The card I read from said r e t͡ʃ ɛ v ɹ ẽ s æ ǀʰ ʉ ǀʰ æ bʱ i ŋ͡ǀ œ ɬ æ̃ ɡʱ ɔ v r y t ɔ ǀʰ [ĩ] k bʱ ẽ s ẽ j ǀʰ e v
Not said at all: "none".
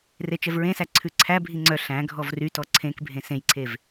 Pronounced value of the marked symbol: ẽ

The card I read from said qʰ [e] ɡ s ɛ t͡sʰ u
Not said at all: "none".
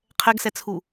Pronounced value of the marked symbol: ɛ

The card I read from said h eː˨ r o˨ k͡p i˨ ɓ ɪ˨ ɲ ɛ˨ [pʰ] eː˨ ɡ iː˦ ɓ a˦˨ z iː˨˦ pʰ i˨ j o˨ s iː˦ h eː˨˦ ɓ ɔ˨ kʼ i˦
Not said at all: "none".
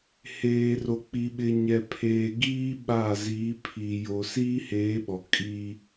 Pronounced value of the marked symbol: pʰ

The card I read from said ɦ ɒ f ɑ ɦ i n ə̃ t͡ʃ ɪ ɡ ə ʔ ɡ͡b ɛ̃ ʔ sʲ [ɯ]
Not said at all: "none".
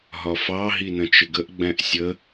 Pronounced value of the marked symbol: ə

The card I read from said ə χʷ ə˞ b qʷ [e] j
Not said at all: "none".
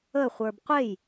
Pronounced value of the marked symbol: e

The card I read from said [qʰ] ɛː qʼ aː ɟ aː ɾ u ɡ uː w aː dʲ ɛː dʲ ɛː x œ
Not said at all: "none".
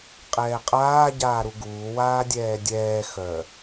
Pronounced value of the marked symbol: qʼ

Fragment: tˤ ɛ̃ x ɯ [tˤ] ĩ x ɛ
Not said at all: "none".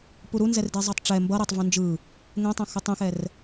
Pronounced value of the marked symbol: tˤ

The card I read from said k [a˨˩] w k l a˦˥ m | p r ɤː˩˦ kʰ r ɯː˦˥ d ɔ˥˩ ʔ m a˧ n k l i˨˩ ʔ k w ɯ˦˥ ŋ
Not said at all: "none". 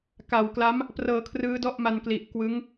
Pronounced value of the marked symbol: a˨˩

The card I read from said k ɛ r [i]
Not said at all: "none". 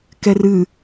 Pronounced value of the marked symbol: ɨ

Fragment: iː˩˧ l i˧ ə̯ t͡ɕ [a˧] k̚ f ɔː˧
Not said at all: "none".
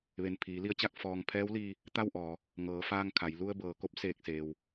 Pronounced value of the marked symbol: a˥˨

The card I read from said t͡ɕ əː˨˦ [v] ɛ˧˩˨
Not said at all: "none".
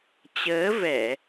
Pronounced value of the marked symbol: v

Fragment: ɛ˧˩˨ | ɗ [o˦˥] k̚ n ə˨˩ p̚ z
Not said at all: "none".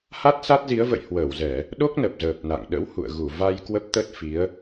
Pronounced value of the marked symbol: o˦˥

